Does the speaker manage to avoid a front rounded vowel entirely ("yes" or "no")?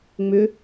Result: no